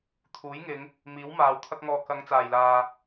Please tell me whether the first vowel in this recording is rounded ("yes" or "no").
yes